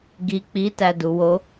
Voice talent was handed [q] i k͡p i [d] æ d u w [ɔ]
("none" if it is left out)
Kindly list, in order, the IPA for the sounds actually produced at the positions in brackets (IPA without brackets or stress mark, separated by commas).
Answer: ɡ, t, o